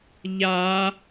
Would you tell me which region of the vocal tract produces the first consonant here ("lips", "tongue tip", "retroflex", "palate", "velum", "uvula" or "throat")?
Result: palate